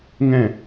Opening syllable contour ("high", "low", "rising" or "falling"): falling